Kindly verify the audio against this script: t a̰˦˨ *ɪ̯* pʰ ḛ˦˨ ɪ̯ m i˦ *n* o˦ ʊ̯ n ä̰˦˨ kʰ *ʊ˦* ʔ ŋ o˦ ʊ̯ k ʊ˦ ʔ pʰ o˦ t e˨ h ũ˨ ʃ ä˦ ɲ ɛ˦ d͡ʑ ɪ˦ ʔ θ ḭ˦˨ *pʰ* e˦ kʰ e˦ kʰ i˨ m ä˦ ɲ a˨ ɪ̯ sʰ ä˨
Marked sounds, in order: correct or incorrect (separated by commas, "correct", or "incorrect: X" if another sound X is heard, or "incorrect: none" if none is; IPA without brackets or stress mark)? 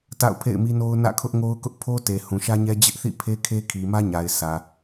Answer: incorrect: ʊ̯, correct, correct, correct